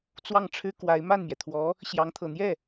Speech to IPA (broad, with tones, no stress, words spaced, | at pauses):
t͡swɑ˥˩ŋ ʈ͡ʂʰɻ̩˥kwa˧˥ɪ̯ ma˥˩nmjɛ˩t̪ʰwɔ˧˥ | ɕjɑ˧˥ŋt̪ʰɤ˨˩ n̪jɛ˥˩